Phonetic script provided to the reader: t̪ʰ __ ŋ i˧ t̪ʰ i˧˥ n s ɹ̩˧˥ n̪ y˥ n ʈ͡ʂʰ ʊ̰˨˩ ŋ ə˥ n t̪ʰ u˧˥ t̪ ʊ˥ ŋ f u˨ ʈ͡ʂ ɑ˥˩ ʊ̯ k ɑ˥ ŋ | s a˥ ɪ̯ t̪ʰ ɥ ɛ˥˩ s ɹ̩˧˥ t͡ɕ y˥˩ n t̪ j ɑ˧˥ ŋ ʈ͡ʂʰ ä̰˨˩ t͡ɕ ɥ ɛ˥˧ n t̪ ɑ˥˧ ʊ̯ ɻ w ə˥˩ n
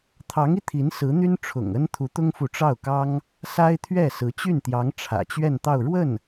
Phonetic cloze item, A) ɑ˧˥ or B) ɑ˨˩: A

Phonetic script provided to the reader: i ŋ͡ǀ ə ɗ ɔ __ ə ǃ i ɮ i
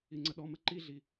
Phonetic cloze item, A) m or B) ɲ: A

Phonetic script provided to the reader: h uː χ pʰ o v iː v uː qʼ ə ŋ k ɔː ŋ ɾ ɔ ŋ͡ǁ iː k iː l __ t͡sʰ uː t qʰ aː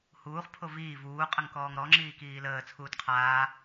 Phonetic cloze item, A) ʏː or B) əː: B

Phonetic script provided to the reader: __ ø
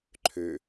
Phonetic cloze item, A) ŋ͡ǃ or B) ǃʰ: B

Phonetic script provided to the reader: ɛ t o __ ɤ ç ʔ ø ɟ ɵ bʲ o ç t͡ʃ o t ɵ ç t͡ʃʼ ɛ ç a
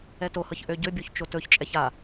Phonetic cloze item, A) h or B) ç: A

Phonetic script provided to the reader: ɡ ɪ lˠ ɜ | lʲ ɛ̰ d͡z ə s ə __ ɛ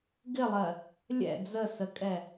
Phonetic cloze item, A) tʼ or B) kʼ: B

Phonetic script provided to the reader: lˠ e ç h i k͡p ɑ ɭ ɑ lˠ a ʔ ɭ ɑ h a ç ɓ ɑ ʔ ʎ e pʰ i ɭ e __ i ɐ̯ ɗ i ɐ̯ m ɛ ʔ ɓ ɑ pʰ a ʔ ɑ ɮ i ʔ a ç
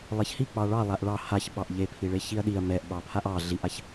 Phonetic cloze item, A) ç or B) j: A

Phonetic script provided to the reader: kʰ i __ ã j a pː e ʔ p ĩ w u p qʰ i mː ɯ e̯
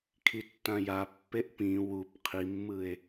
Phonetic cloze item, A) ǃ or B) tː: B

